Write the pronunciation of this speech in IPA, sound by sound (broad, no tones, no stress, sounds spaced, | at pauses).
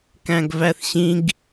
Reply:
k æ̃ ɡ v æ θ ɕ ĩ ɡ